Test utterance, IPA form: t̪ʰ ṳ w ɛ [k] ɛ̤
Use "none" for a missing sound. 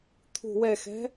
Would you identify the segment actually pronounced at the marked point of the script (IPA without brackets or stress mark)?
x